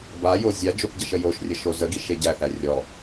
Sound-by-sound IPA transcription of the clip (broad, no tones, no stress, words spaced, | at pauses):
bajo zʲad͡ʒopɟəʃə joʃrʲəʃo zəɡiʃ eɟæθæ rʲɔ